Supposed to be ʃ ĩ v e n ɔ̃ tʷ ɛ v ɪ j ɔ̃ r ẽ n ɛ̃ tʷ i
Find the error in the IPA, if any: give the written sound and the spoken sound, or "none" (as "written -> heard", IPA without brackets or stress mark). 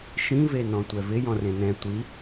none